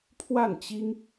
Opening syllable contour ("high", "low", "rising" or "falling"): falling